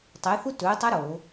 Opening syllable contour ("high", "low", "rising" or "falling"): rising